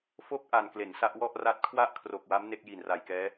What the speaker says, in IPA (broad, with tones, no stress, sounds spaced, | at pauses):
f o˦˥ k̚ ʔ a˨˩ n k l e˩˦ n s a˦˥ ʔ w ɔ˥˩ ʔ r a˦˥ t̚ kʰ w a˥˩ ʔ kʰ r o˨˩ k̚ w a˦˥ m n e˥˩ k̚ j i˨˩ n r a˨˩ j k ɛː˦˥